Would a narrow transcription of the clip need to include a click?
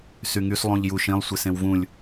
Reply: no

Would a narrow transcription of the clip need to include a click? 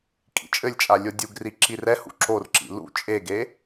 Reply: yes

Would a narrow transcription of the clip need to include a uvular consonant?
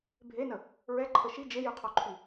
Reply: yes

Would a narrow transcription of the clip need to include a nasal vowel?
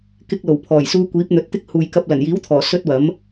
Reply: no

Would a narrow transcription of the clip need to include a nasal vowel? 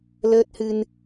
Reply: no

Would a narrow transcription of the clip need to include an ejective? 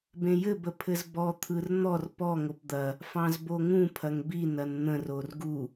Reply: no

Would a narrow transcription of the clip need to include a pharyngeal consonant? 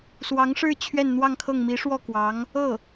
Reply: no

